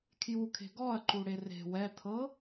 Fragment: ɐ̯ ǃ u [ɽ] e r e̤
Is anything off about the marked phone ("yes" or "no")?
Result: no